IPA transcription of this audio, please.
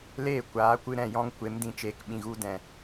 l eː˦˨ kʷ aː˨˦ kʷ ɨ˧ ɾ ɛ̃˦˨ j ɔ̃˦ ŋ kʷ e˨˦ m d ĩ˨ t͡ʃ eː˨ k ɓ ĩ˨ ɣ u˧ d ɛ̃˨

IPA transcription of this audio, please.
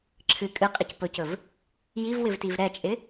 ǁʰ ɨ kʼ ɨ qʼ i c p ɵ c ɵ v | j i v w ɪ v t i v ɾ ɛ t͡ʃʼ ɪ

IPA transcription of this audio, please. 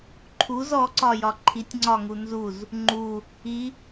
ǃʰ u z ɔ ǀ ɒ j ɒ ǃʰ i tʲ ŋ͡ǀ ɒ ŋ u n z u z | ŋ͡ǃ u | i

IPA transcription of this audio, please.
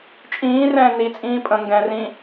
t͡ʃʼ ĩː r ɛ̃ː n i t͡sʼ ĩː pʼ ə̃ ŋ ɡ ɛ̃ r ĩ

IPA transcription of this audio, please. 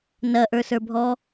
n ɐ ʔ ə˞ s ə˞ bʱ ɔ

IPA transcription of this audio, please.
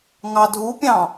ŋ ɑ dʱ u pʲ ɑ̃

